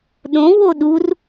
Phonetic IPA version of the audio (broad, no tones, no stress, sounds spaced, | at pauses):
ɗ õ w o ɗ u r